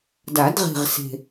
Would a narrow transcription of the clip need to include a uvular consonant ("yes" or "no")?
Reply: yes